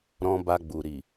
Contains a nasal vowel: yes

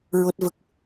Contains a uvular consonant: no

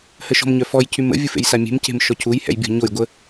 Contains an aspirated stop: yes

